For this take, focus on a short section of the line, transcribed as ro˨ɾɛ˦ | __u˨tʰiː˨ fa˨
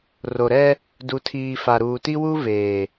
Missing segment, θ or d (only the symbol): d